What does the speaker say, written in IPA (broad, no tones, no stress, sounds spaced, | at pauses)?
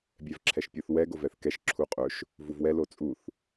bʲ ɛ v ǁʰ ɛ ʃ pʲ u θ w ɛ ɡ o v ɛ θ k ɛ ʃ ǁʰ u qʼ ɵ ʃ | v u v w ɛ l o t͡sʼ u θ